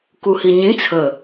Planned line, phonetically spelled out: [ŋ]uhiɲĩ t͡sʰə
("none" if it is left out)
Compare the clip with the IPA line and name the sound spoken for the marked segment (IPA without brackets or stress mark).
k